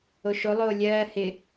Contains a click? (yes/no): no